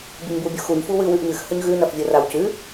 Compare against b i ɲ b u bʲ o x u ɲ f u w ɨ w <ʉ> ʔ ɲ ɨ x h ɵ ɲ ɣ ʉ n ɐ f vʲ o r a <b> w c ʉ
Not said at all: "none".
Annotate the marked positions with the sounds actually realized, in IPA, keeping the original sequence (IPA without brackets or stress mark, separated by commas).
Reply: ʉ, none